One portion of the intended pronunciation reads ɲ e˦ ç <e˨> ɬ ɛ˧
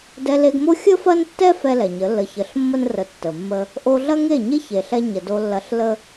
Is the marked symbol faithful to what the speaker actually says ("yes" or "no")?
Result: yes